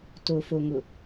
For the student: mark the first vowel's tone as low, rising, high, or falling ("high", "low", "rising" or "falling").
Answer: low